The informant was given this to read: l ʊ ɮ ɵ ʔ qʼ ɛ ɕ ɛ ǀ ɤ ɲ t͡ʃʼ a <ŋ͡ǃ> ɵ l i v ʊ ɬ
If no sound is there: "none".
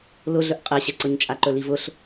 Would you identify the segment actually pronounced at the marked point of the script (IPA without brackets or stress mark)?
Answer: ǃ